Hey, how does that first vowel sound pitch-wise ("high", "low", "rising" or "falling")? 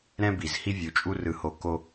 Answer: high